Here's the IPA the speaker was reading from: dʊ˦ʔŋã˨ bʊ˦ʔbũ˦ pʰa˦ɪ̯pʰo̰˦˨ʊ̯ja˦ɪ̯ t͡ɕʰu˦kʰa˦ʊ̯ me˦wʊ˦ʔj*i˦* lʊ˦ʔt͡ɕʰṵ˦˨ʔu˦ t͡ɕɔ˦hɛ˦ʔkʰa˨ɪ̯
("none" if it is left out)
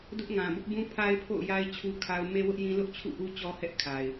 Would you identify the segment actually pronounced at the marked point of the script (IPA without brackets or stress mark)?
ĩ˦